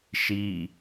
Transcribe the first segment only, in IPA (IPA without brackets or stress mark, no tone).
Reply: ʃ